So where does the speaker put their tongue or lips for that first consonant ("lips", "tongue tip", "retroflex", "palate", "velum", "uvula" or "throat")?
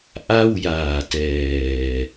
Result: throat